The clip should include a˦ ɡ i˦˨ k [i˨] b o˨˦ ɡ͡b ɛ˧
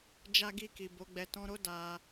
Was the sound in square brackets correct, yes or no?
yes